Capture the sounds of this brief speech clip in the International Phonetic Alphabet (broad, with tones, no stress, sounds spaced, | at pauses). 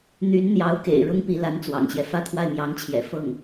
n̪ y˧˥ n n̪ j ɑ˧˥ ʊ̯ k ḛ˨˩ ɪ̯ ɻ ʊ˥ ŋ p i˧˥ l a˧˥ n t͡s w ɑ̰˨˩ ŋ ɕ j ɛ˦ f ä˥˧ t̪ʰ w a˥˩ ɪ̯ m j ɑ˧˥ ŋ t͡ɕʰ j ɛ̰˨˩ f ɤ˥˩ ŋ